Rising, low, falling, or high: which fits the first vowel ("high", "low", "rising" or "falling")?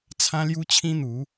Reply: high